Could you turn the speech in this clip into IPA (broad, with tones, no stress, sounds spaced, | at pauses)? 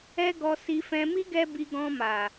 ɛ˦ ɡ ɔ˧ s i˧ f ɛ̃˧ m i˦ ɡ ɛ˦ b i˧ ɡ ɔ̃˧ m a˨